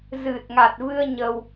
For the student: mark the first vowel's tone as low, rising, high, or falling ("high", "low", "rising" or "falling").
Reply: low